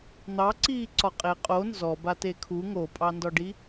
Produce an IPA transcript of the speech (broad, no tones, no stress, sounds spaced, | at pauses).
n̪ ɑ ǀ iː ǀ ɒ qʼ e qʼ o n z ɔ b a t e kʰ u ŋ o pʼ ɑ n d ɒ ɖ i